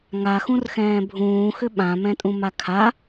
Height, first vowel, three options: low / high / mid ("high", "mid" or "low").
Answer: low